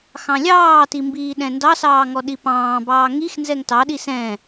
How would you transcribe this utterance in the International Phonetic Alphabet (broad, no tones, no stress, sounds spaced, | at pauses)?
x ɑ̃ lʲ ɑː t i m b iː ɗ ɛ̃ n d ɑ s ɑː ŋ ɔ ɗ i p ɑ̃ː b ɑː ŋ i x n z ɛ ŋ t ɑ ɗ i s ɛ̃